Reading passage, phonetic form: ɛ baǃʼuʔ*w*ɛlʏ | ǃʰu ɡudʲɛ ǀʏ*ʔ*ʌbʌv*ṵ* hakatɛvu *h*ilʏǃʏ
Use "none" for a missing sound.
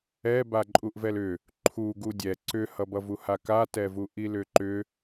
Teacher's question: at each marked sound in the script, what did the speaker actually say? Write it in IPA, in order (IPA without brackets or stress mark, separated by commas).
v, h, u, ʔ